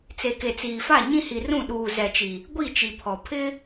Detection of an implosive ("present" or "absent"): present